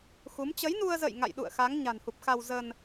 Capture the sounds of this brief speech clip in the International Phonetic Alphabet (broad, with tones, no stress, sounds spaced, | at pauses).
x u˨˦ m t͡ɕ ə˨˦ j n u˧ ə̯ z ə̰˧˨ j ŋ a̰˧˨ j ɗ ṵ˧˨ ə̯ x a˨˦ ŋ ɲ a̤˨˩ n h u˨˩ p̚ x a˧ w z ə˧ n